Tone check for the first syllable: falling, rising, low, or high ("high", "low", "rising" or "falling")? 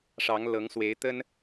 rising